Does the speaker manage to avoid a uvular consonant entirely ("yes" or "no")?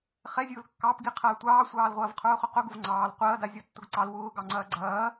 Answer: no